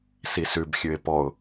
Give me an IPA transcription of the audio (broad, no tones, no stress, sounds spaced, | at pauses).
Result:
s i s ʉ b xʲ ʉ ɪ̯ p ɔ ʊ̯